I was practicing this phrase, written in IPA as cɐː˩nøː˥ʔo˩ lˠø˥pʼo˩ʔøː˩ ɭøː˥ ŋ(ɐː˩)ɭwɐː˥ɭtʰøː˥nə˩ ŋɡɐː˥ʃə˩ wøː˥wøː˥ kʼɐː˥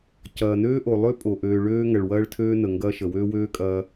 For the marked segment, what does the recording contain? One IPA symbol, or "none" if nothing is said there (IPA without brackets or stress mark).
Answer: ɐ˩